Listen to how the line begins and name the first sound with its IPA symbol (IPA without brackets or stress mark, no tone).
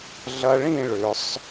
ɮ